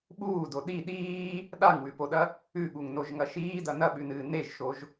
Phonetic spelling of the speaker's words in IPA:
ɓ uː d o ɗ i ɗ iː | ɗ a ŋ w ʉ p o ɗ ɐ | ʉ ɠ u ŋ n o ʒ ŋ ɐ ʃ iː d ɐ n ɐ ɓ ʉ n ɨː n e ʒ ʃ o ʒ

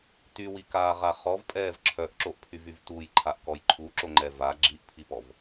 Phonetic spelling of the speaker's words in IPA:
t y w i k aː ʁ a χ ɔ v pʼ ɛː v ǁʰ œ ʔ ǁ o ʔ pʰ y v y v t u j ǃʰ a ʔ k ɔ j ǃʰ u ǁ o ŋ͡ǃ ɛ v a ɡ͡ǁ i ʔ pʰ i p ɔ v

